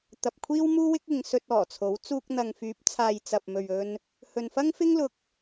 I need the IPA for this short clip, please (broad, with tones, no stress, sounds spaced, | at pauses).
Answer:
t̪ ɐ˨ p̚ kʷʰ iː˥ w m uː˥ w ɪ˥ k̚ ɪ˨˧ ŋ s ɵ˧ t̚ ɔː˨˩ t͡sʰ o˨˥ w t͡s uː˧ k̚ n̪ ɐ˨ ŋ f yː˨˥ p̚ t͡sʰ aː˨ j t͡s ɐ˨ p̚ m ɵ˨ ɥ ɵ˧ n | h ɵ˨ n f ɐ˥ ŋ f ɪ˥ ŋ l ʊ˧ k̚